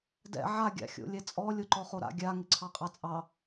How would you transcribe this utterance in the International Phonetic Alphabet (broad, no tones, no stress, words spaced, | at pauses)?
dɛ̰ ʕa ɡʲa̰xʲo̰lʲɛt͡sʼɔ lʲoǃɔχoɾa̰ ɡʲa ŋɪǀʰɑqʼɑt͡sʼɑ